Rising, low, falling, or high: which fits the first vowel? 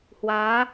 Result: rising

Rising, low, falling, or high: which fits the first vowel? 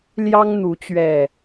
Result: high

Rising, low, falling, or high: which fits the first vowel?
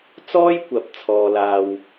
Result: high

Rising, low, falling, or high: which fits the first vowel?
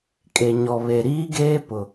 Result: low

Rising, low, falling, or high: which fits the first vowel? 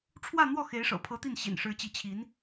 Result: falling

